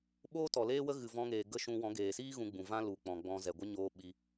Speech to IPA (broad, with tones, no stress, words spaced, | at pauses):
ɓoː˦tɔ˨leː˦wə˦ ɣɨ˨vɔ̃˧ŋeː˨ ɡə˦ʃũ˧ wɔ̃˨˦ ɡeː˨siː˦ ɣũ˧ɡ͡bũ˨vã˦ lu˨k͡pɔ̃˨ɡ͡bɔ̃˧ zɛ˨ɡʷə˦ɲoː˧ ɓi˧